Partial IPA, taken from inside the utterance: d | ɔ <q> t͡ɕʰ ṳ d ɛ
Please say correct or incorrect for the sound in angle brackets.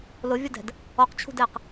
correct